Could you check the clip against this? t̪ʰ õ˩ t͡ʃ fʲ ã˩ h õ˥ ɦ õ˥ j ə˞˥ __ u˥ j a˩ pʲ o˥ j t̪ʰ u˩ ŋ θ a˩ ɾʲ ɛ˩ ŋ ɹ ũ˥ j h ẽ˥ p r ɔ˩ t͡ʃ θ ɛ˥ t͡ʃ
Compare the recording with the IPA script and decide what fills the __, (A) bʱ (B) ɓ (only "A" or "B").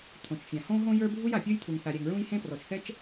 A